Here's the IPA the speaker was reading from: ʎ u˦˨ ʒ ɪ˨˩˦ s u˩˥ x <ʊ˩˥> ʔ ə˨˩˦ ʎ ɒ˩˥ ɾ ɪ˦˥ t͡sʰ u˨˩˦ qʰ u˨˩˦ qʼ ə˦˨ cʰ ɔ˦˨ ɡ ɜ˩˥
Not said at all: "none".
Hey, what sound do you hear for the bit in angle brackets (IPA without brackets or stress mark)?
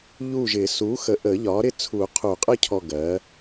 ə˩˥